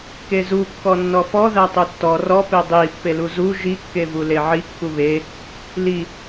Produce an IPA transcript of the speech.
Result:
kezu kːɔnːɔfɔ ðætˤutːɔ rɔ pedˤi pːeluzu ʒi kːevuleʕi kːuβe | li

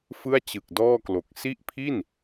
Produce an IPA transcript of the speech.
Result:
fɯ˥˩a̯t͡ɕɯ˨˩k̚dɔː˥˩klo˨˩k̚ si˦˥ʔpʰi˥˩n

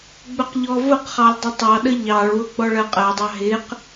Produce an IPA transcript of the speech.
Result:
ɡ͡bʊqʎɔvʊqχɑlʲ dˤʊtˤɑɗə ʎɑɭwʊ ɡ͡bɔɭɜqʼɜdˤɑ ɦɪq

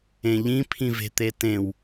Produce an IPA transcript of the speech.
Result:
ẽʎĩ pʰĩve̤t̪etẽw

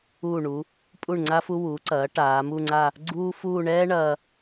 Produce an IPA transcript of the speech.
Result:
uː˧˩ɳu˩˧ | pʼu˧˩ɳŋ͡ǀa˧fu˧ wu˩˧ǀɐː˩˧ ʈaː˩˧mu˥˧ŋ͡ǀa˥˧ | ɡ͡ǀuː˥fuː˥˧ ɳɛː˥ ɳɐː˧

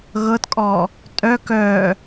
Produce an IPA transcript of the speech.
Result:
ɣɤtkʼɔ | tʼœk œ

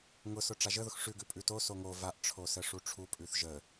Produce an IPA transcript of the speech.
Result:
ŋʊsʊ ʈ͡ʂaʒəðʊx ʂʉɡʉ pʼʉto soŋo vaʔʈ͡ʂʰosə ʂuʈ͡ʂʰupʼʉθ ʒə

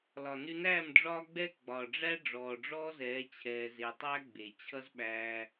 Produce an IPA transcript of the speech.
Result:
lɒ˨nʉ˧næː˦˨m ɖ͡ʐɒː˦ɡ͡bɛ˦ ɡ͡bɒ˨ ɖ͡ʐæ˦ ɖ͡ʐɔː˨ɖ͡ʐɔː˦zɛː˨˦ t͡ɕʰɛː˧ze˧ tˤæ˦ɡ͡be˨ t͡ɕʰʌ˦zɓæː˧

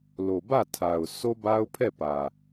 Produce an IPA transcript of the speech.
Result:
lo˨bä˦˨tʰa˨ʊ̯ so˦ba˦ʊ̯pʰɛ˦˨ pä˨

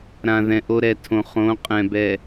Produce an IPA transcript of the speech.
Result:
ɾã˨ ðɛ̃˨ʔo˦ɾɛ˨˦tʰõ˨ χõ˨˦qʼɛ̃˨ bɛ˨

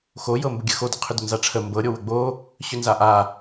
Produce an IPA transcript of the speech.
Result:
xojɤ mbəɡʲəxodə qʰʏdʏnzaʈ͡ʂʰə mbɤɾʲo wəɡ͡bo | ɕʏnzaʔa

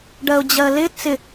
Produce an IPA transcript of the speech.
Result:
ɖɜʊ̯d͡ʑɜlɪ t͡sɪ

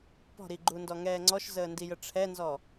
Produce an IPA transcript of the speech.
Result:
pɔ̤ɾiɡ͡ǃundɔ ŋɛːŋ͡ǀɔʃzəː ndijəʈ͡ʂʰɛnzɔ

